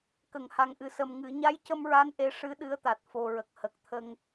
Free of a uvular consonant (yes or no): yes